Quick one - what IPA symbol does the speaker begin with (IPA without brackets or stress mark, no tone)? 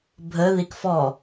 bʱ